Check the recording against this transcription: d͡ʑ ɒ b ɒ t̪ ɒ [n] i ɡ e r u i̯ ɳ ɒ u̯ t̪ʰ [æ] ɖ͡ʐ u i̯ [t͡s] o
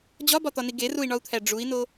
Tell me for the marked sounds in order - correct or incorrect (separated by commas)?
correct, correct, incorrect